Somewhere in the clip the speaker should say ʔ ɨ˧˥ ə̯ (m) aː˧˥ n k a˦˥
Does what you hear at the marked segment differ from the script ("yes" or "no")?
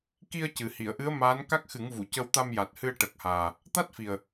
no